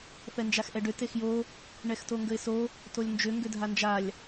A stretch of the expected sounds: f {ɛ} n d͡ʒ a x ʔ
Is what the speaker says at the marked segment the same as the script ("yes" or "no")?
yes